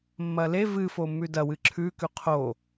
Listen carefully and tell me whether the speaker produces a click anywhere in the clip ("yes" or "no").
yes